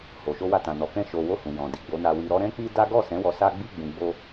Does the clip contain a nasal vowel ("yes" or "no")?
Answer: yes